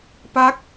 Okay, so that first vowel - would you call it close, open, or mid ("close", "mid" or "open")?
open